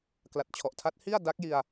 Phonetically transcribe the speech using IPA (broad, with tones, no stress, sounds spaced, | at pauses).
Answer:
k l a˨˩ t̚ t͡ɕʰ ɔ˨˩ ʔ tʰ a˦˥ t̚ h i˥˩ a̯ d a˦˥ k̚ j i˧ a̯